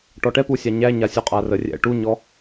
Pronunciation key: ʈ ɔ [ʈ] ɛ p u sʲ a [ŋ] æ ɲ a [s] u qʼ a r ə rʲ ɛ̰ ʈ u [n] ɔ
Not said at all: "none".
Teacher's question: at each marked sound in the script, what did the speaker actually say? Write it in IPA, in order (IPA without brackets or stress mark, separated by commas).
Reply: ʈ, ɲ, sʲ, ɲ